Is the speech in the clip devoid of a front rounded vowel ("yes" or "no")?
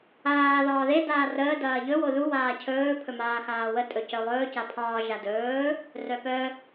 no